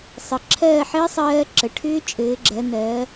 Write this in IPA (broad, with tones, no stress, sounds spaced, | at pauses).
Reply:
sˤ ɘ˩˧ ǁʰ ɜː˦˨ ħ ɘː˦˥ sˤ ɜː˦˥ ǁ ə˩˧ ʈʰ ʏː˦˥ t͡ʃʼ ɘː˩˧ ɡ͡ǁ ɜ˩˧ n ɜː˩˧